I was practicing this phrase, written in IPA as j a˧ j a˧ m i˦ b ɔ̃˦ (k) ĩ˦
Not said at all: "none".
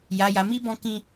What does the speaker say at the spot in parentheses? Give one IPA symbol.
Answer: k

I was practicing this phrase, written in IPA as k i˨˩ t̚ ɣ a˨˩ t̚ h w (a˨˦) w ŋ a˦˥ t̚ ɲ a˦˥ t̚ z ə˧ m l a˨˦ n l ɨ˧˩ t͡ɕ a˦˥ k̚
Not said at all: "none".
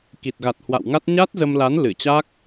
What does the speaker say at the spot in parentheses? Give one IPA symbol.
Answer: a̰˧˨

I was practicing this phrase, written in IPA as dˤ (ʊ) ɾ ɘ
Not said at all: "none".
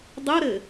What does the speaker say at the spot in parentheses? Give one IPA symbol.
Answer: ʊ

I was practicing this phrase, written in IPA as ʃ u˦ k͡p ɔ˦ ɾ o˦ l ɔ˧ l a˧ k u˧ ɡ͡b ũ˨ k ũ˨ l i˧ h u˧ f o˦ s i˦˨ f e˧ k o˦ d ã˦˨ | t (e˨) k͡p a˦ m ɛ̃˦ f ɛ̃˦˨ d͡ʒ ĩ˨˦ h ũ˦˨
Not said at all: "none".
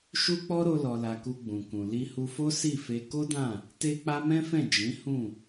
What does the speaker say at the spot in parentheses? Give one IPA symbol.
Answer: e˦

